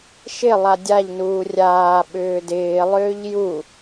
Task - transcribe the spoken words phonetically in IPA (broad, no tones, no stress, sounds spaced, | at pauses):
ʃ ɪ lˠ a dʲ a ʎ n uː rʲ aː ɓ ʏː d ɪː lˠ ʏː ʎ j u